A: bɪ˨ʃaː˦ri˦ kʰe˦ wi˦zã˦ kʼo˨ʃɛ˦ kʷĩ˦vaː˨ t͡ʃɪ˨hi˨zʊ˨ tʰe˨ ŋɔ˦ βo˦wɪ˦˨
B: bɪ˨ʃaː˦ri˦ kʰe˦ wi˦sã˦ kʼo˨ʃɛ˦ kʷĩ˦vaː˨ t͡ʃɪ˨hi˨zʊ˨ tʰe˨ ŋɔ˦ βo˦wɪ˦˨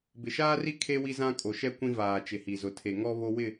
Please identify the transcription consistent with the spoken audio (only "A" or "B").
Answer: A